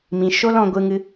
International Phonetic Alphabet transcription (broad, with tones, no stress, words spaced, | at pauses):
mĩ˨ʃo˦l ɔ̃˧ɡʷɨ˧ŋɨ˧